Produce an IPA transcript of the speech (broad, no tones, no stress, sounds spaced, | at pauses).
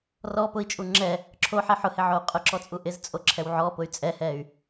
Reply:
r ɔ p ʊ i̯ t͡ʃʼ u ŋ͡ǁ ɛ | ǁʰ o ħ ɛ ħ ʊ h ɪ ʕ o u̯ qʼ ʊ ǁ ɔ t͡sʼ u ʔ ɪ z t͡sʼ o ǁʰ ɛ w ʕ ɔ p ʊ y̯ t͡sʼ ɛ h ɛ y̯